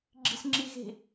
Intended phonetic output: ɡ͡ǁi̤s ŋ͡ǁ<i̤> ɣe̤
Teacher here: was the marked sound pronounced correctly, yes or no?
no